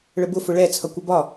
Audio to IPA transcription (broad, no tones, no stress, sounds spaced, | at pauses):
ɭ ə b ʊ f ʊ ɭ ɛ t͡sʰ ʌ kʷ ə b ɒ